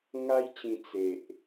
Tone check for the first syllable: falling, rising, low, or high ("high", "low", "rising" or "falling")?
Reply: high